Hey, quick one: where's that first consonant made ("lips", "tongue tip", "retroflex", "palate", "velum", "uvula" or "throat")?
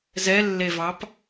tongue tip